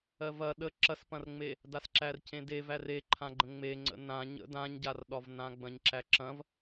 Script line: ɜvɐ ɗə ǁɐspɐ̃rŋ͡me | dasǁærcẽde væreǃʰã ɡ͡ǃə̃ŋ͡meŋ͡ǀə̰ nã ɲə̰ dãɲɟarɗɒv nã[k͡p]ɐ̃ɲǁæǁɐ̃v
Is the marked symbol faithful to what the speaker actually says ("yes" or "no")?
no